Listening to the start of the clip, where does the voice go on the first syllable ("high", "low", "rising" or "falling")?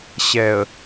low